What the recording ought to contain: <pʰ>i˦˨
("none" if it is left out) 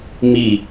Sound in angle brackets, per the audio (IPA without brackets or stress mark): m